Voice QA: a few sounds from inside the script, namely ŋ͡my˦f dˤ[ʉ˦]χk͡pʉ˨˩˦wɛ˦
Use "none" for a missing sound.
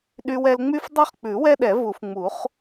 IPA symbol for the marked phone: ʉ˦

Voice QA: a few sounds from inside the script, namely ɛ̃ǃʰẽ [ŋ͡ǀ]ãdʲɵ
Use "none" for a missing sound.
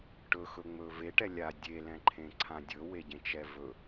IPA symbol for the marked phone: ǀʰ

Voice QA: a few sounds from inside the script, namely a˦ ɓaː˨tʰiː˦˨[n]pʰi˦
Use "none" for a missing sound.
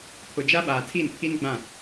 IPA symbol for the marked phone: n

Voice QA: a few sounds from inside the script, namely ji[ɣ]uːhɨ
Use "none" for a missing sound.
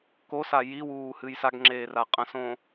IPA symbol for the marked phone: w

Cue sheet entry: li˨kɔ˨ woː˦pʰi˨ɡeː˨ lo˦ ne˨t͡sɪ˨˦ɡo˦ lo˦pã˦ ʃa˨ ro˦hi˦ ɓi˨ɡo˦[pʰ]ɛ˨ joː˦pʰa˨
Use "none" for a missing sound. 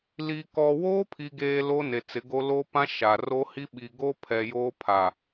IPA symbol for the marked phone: pʰ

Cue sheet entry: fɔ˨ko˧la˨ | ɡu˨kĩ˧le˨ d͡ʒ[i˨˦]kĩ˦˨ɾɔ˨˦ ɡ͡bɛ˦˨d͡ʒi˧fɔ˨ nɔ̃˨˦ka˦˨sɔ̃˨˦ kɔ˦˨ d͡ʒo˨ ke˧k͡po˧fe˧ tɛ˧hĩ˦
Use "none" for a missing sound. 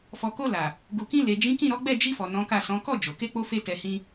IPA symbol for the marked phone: ĩ˨˦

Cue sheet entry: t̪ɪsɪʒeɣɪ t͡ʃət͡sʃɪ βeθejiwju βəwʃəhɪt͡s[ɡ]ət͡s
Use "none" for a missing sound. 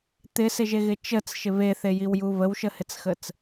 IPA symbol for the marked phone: x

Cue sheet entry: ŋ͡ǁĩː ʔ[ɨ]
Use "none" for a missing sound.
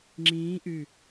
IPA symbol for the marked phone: ɨ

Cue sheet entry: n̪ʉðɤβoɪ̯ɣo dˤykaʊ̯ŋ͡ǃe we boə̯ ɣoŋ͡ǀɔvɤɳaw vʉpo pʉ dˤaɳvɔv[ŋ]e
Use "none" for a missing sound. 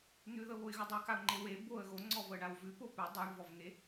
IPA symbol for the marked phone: ŋ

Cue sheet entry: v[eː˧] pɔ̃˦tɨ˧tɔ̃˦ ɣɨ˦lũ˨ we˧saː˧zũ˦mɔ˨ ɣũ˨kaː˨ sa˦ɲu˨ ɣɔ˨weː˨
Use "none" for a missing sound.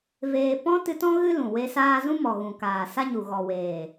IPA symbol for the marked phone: eː˧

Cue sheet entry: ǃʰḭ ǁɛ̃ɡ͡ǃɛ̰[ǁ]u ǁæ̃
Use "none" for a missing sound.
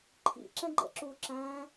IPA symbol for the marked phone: ǁ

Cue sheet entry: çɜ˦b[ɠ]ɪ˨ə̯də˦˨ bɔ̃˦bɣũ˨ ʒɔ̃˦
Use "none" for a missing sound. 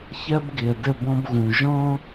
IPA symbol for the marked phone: ɡ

